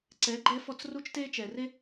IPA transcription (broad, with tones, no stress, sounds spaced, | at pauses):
ǀ ɛ˨˥ ɡ͡ǃ ɛ˦ f ɔ˦˨ t͡s r u˦ t͡ʃ t e˦ t͡ʃ ɛ˨ r e˦